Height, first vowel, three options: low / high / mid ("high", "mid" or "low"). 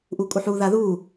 high